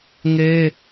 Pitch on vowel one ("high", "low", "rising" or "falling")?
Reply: high